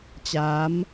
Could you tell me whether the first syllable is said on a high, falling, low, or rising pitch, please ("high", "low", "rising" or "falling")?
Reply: rising